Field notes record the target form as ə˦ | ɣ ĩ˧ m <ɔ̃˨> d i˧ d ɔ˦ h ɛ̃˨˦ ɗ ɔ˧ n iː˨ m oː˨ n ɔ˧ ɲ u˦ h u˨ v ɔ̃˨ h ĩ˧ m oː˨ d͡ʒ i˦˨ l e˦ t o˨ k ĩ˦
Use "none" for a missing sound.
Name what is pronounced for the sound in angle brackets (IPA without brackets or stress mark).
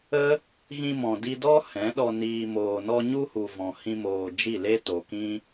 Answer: ɔ̃˨